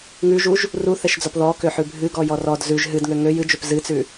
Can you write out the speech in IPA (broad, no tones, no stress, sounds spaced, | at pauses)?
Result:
ŋ ʉ ʒ u ʒ | r u θ ɛ ʃ d͡z ɔ p ð ɔ k ø ħ ʉ bʱ ɨ ɡ ɔ j ɔ r ɔ d z ʉ ʒ ɦ ɨ d ŋ ø ŋ ø j ɨ d͡ʒ ø p z ɨ t͡s ʉ